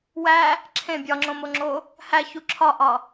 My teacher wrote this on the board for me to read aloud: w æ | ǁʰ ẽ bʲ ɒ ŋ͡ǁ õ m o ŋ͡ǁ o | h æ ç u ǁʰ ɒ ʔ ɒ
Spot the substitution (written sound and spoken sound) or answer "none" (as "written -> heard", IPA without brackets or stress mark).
none